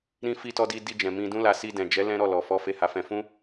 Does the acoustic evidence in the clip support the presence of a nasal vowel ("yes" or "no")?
yes